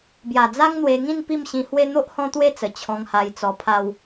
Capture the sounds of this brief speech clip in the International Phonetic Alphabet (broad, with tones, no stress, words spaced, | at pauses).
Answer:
bja˨˩d͡za˦ŋn̪we˧ŋĩ˥˧n pi˥˧mɕĩ˧hwe˦ n̪o˦ʔhɔ̃˦t̪we˥˧t͡sə˨˩ t͡ɕʰɔ̃˧ŋha˧jt͡sɔ˧ pʰa˧w